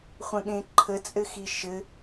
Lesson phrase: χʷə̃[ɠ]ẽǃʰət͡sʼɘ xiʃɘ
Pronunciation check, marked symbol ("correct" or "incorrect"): correct